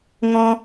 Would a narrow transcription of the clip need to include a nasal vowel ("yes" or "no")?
yes